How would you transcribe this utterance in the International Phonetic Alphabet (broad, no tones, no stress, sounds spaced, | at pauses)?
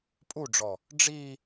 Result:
pʼ u ɖ͡ʐ ɔ | ɖ͡ʐ i